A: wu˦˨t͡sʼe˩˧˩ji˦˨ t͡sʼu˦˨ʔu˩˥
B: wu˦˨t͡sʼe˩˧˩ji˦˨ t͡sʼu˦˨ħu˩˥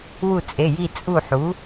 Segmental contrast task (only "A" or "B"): B